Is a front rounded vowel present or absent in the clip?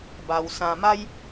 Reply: absent